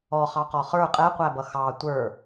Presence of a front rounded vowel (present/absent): absent